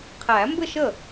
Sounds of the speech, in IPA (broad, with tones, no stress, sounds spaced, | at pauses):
qʰ æ˨˩˦ m b ɘ˥˧ ʃ ə˥˩